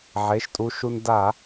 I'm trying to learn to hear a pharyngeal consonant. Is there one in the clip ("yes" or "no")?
yes